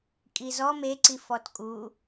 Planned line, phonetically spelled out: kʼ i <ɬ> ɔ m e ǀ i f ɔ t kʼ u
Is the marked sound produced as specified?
no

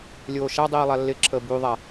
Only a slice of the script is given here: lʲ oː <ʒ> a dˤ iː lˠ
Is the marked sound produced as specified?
no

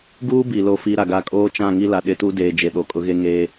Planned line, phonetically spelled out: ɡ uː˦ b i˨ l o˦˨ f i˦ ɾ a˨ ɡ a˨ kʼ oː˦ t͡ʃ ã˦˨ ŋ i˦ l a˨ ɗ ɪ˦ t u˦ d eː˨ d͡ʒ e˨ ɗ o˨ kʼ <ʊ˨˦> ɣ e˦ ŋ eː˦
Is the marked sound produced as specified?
yes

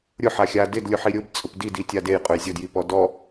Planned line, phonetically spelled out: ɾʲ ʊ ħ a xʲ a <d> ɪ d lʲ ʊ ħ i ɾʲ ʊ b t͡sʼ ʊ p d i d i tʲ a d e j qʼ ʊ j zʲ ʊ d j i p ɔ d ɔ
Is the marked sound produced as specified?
yes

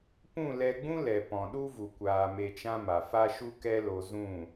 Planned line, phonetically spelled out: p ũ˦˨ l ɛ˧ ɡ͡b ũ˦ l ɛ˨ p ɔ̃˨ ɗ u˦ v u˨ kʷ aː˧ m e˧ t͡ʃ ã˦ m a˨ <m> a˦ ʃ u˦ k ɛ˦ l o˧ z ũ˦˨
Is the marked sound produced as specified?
no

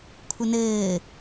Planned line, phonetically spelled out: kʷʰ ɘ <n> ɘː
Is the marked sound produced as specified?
yes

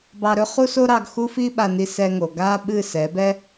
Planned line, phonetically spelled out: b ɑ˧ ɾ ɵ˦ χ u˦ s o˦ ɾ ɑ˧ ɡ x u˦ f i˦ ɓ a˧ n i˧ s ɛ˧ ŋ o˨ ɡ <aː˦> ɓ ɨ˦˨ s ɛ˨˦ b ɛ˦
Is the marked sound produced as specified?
yes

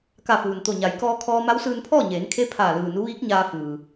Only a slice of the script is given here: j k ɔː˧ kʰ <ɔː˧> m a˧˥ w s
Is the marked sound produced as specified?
yes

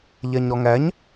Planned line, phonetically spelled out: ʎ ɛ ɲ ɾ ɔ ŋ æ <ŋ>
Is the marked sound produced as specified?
no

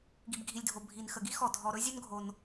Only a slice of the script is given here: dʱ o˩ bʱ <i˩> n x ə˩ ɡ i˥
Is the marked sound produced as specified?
yes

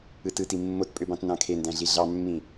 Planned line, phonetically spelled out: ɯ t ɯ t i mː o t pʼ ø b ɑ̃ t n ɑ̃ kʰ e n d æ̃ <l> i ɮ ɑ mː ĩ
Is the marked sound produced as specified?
no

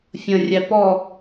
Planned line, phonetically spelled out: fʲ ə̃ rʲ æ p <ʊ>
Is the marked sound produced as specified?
no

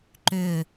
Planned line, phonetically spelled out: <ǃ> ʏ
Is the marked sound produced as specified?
yes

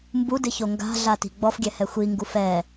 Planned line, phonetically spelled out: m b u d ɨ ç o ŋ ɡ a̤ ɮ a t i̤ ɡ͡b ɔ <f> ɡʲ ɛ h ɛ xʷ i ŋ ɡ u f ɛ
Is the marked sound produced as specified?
yes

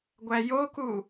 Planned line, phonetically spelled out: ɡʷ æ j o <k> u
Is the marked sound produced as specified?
yes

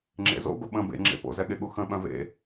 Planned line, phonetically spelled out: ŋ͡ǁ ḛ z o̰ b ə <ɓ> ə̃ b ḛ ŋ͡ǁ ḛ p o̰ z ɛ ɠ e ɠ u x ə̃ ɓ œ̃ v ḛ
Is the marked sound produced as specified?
yes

